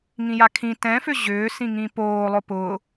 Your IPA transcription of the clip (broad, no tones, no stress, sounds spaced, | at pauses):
ŋ ĩ j a kʰ ĩ t ɛ̃ f ʏ ʑ ʏː s ĩ ŋ ĩ p oː lˠ ʊ p ʊ